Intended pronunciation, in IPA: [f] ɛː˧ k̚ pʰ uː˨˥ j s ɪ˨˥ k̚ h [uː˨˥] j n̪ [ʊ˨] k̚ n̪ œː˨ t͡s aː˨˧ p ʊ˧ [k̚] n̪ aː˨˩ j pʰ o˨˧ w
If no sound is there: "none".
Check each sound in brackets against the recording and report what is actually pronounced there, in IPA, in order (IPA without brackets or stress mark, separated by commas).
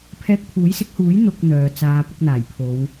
pʰ, uː˨˥, ʊ˨, k̚